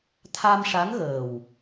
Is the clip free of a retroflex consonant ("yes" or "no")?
no